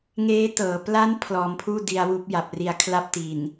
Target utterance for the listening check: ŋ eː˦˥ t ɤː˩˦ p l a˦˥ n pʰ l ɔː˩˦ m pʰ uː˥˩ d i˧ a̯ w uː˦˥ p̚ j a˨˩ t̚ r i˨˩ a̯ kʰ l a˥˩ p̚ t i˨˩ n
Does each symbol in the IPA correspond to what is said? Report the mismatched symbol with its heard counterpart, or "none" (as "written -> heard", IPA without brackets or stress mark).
t̚ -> p̚